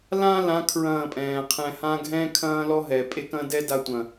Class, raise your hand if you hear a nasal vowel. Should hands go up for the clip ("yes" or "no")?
yes